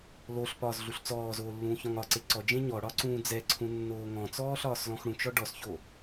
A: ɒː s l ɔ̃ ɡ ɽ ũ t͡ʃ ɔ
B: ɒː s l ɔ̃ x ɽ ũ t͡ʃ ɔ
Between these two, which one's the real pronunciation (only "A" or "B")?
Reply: B